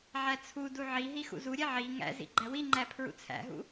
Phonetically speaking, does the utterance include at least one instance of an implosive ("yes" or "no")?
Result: no